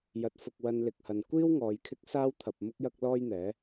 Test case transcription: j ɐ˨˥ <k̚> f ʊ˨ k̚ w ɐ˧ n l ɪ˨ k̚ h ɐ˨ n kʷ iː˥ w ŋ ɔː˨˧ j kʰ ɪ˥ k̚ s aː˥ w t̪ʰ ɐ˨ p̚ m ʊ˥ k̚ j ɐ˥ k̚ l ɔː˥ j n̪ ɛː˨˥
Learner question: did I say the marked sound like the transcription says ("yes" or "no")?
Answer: no